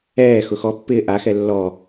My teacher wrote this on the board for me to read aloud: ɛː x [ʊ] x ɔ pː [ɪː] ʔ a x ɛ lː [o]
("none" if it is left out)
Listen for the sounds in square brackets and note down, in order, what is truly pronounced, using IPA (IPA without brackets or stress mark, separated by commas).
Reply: ʊ, ɪː, ɔ